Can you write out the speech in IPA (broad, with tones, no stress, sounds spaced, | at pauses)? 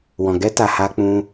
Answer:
w ɔ̃˨ ɡ ɛ˧ t a˨ h a˧ k͡p ũ˧